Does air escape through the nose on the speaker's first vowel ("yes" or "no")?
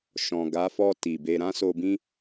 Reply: yes